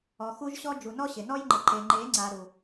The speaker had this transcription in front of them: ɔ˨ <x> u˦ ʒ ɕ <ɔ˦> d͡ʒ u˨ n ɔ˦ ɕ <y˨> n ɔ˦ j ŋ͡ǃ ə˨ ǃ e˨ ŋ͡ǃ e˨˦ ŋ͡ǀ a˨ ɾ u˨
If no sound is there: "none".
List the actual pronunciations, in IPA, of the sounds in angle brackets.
x, ɔ˦, ɪ˨

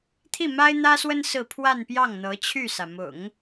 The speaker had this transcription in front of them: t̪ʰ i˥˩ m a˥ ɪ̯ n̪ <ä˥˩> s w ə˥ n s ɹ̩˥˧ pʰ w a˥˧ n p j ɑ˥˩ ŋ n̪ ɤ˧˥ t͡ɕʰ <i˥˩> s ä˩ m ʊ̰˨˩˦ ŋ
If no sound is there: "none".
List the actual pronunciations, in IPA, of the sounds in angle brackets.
ä˥, y˥˩

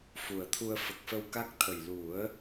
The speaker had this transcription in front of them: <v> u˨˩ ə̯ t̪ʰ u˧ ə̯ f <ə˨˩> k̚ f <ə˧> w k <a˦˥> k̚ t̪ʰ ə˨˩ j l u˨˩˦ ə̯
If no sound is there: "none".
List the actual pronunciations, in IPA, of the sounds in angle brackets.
f, ə˨˩, ə˧, a˦˥

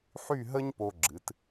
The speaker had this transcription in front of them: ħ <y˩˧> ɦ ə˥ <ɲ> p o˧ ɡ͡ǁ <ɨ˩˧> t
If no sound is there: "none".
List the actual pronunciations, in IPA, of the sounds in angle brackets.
y˥˧, ɲ, ɨ˩˧

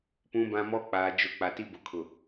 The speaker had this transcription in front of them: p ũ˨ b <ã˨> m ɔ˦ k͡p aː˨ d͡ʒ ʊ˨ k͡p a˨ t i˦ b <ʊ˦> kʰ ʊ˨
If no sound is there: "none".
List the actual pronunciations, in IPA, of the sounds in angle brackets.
ã˨, ʊ˨

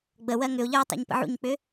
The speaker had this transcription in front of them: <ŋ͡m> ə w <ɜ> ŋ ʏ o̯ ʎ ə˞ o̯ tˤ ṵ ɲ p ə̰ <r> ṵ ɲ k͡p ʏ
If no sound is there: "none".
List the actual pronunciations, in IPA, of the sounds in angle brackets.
ɡ͡b, ɜ, ʕ

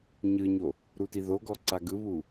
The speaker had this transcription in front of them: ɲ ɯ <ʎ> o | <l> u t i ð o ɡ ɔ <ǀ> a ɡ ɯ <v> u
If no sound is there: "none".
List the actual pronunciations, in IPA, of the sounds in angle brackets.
ɲ, ɾ, ǀ, β

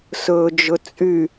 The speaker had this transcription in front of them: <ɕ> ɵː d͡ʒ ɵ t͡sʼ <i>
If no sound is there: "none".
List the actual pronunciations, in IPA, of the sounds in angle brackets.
s, y

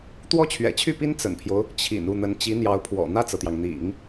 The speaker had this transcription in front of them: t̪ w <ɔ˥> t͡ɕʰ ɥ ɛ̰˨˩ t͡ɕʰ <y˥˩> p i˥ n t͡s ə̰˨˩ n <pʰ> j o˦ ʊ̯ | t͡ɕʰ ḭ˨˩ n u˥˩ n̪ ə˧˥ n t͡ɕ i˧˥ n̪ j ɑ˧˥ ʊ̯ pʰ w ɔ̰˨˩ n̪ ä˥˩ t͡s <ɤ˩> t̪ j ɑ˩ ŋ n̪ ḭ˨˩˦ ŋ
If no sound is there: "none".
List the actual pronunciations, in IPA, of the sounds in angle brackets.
ɔ˥, y˥˩, pʰ, ɤ˩

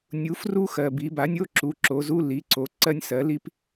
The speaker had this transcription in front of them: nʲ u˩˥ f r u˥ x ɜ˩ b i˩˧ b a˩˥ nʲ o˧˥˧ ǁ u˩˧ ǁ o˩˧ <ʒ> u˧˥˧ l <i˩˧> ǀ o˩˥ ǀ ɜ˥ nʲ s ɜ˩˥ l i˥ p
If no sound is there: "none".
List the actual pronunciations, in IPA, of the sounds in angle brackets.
z, i˩˥

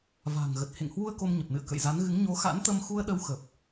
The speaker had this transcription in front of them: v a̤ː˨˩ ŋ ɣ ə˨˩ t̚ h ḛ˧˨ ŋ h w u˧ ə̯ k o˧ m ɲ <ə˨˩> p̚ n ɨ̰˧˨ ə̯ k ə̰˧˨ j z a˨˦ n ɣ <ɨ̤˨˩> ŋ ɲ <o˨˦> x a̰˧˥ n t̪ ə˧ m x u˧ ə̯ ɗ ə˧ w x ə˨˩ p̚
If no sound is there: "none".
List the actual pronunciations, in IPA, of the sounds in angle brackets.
ə˨˩, ɨ˨˦, o˨˦

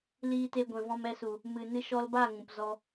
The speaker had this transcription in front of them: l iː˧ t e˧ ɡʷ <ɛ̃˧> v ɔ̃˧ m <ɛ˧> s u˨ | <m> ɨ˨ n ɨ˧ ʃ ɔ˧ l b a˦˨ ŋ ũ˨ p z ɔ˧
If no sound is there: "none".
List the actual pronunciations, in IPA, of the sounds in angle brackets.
ɛ̃˨, ɛ˧, m

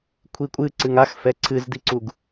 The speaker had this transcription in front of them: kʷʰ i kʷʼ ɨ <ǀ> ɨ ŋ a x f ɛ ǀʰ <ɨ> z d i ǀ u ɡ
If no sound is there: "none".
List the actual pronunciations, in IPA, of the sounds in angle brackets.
ǀ, ɨ

